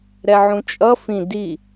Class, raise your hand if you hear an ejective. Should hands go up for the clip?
yes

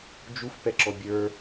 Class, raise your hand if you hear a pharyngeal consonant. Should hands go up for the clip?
no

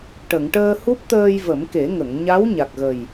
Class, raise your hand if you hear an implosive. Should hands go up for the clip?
no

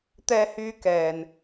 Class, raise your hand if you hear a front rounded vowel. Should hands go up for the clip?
yes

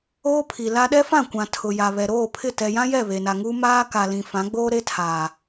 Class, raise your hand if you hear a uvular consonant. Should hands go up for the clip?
no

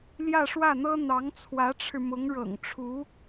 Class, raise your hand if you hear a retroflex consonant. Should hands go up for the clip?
yes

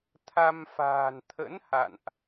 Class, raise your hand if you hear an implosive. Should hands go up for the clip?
no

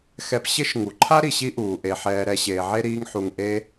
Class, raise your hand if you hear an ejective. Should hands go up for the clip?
no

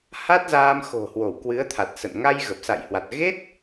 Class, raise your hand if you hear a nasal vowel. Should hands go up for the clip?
no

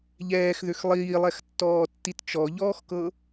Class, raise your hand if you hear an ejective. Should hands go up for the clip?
no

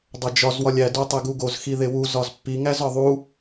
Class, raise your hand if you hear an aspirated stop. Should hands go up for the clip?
no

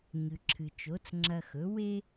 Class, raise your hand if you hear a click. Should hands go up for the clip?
yes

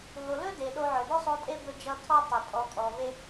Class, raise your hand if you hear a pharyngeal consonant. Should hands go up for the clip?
yes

